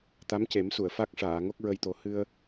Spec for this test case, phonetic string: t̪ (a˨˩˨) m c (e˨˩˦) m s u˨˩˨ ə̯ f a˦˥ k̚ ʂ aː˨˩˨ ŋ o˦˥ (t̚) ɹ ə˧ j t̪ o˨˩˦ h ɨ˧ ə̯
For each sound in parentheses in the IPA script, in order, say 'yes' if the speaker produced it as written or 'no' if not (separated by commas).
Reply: no, yes, no